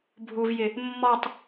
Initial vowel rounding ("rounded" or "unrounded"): rounded